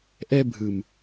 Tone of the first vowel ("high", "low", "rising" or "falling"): high